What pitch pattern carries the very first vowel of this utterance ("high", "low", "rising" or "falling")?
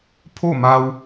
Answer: falling